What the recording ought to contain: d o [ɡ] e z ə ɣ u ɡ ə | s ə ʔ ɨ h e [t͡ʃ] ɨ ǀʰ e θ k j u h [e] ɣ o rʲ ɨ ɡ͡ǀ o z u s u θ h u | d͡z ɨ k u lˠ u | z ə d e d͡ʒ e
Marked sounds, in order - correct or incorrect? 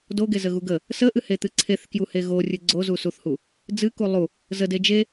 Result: correct, incorrect: t̪, correct

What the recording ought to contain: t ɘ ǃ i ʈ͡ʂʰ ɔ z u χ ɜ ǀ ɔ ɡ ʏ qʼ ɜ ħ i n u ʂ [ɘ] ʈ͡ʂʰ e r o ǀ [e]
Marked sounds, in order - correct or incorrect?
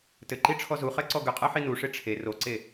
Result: incorrect: e, correct

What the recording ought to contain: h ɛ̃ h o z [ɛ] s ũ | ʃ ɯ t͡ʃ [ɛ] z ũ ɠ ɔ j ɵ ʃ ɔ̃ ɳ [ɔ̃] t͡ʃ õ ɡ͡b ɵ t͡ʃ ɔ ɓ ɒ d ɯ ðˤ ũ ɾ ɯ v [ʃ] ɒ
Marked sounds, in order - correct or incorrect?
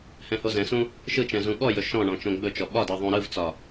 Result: incorrect: ɛ̃, incorrect: ɛ̃, correct, incorrect: t͡s

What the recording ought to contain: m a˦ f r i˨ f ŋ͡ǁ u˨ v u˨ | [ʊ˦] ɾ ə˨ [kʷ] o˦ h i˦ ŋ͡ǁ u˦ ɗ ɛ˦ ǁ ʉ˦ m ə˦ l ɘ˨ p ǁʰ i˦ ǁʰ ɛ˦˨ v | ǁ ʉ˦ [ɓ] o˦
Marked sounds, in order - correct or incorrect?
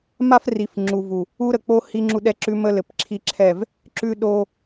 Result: incorrect: u˦, incorrect: k͡p, incorrect: ɗ

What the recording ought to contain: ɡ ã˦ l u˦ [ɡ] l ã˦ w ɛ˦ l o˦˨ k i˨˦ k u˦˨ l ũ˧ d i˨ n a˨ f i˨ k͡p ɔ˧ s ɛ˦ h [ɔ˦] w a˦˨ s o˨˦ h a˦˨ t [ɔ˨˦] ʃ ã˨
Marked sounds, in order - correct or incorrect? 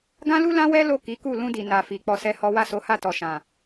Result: incorrect: none, correct, incorrect: ɔ˨

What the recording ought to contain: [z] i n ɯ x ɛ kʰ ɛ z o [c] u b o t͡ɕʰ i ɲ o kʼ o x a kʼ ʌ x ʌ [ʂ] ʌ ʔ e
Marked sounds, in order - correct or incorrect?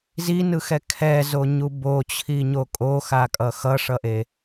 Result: correct, incorrect: ɲ, correct

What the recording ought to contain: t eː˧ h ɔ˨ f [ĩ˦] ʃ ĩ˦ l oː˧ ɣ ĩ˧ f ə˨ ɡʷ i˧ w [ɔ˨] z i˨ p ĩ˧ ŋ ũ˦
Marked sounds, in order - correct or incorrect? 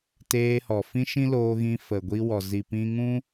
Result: correct, correct

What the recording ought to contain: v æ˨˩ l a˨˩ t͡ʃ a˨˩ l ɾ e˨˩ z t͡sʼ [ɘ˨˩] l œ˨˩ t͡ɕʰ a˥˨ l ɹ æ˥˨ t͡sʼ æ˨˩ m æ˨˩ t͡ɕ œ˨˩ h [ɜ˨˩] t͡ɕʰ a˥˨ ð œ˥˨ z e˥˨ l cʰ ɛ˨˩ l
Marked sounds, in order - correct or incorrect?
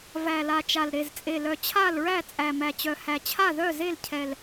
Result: incorrect: e˨˩, incorrect: æ˨˩

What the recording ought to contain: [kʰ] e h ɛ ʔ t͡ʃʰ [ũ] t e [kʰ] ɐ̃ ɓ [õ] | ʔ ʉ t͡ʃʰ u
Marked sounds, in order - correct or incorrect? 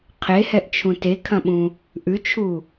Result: incorrect: qʰ, correct, correct, incorrect: ũ

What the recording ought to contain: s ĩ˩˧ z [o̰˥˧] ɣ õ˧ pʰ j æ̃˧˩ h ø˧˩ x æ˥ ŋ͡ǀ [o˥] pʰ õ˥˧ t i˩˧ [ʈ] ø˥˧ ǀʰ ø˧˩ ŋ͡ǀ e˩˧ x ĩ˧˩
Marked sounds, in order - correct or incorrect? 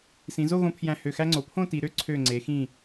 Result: incorrect: o˥˧, incorrect: o˩˧, incorrect: ɾ

